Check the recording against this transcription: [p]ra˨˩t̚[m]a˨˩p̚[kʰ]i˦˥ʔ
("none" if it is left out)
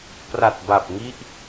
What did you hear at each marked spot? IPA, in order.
p, b, ŋ

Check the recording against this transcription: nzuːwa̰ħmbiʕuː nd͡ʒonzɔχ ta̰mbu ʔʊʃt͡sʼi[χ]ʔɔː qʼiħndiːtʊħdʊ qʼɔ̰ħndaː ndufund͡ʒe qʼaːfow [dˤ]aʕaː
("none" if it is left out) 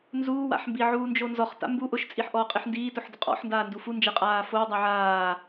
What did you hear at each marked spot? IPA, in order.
ħ, dˤ

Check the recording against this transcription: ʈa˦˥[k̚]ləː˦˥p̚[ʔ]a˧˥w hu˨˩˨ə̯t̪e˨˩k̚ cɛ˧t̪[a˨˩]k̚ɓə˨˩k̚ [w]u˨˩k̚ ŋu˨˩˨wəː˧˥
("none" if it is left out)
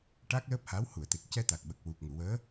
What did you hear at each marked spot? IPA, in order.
k̚, h, a˨˩, w

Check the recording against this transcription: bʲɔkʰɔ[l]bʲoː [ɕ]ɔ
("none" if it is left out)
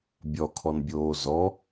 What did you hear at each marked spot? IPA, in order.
n, z

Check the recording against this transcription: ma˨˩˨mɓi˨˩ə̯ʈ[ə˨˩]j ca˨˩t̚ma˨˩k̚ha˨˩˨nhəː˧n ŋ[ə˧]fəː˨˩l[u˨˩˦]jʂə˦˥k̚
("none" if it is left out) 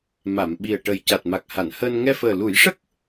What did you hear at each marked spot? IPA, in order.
ə˨˩, ɛ˧, u˨˩˦

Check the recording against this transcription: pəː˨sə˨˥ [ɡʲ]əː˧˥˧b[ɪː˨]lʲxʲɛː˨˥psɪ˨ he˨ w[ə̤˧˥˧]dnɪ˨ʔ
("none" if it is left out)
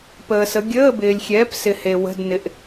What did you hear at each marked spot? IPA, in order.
ɡʲ, ɪː˨, ə̤˧˥˧

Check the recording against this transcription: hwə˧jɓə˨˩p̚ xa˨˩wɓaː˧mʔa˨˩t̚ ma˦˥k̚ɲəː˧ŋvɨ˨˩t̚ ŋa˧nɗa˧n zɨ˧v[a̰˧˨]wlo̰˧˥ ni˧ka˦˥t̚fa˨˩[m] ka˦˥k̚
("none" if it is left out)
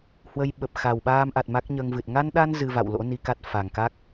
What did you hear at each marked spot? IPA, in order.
a̰˧˨, ŋ

